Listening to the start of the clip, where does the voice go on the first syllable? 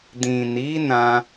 low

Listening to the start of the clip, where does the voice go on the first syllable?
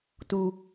low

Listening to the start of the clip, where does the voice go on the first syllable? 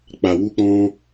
low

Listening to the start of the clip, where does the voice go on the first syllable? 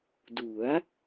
rising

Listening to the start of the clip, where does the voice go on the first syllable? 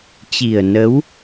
low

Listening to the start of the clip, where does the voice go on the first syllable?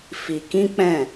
low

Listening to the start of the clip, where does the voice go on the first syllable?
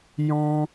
high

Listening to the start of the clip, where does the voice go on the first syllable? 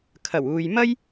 low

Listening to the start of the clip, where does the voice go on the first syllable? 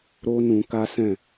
high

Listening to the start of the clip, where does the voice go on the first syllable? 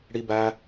high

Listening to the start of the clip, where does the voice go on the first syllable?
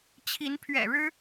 rising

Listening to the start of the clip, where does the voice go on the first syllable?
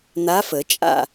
rising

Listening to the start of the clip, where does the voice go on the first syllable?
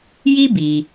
high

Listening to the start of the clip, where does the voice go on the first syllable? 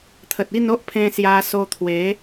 low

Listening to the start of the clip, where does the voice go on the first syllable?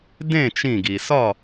falling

